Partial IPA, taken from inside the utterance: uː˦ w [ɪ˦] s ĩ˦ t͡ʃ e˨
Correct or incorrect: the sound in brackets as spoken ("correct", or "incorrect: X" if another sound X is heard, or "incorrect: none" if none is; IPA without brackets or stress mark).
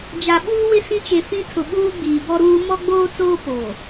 correct